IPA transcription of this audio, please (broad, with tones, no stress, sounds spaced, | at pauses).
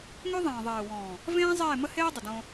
ŋ ø˦ ðˤ ẽː˨ ðˤ eː˨ w ɔ̃ː˨ | v ẽː˦ zˤ eː˦˨ m ə˦ h eː˦ dˤ ə˨ d õ˦